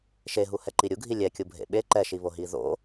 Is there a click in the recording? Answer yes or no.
yes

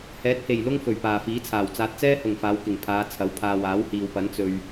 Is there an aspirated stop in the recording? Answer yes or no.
yes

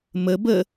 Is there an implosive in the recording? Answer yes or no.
no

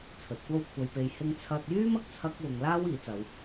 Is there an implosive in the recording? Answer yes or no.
no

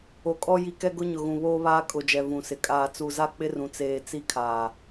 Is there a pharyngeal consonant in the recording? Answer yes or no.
no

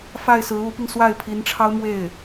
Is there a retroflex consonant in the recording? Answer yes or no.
yes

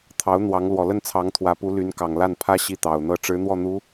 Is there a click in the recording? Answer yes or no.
no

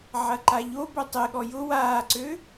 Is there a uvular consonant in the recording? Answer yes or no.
no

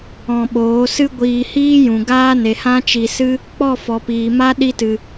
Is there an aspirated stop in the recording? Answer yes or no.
no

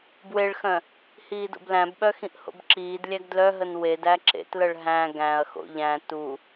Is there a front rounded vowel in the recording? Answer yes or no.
yes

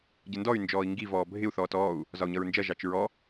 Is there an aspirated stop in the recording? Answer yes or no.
no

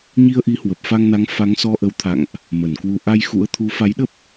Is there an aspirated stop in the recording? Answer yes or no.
yes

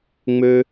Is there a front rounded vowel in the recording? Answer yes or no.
yes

